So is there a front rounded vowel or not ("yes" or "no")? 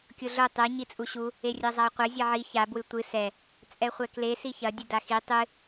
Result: no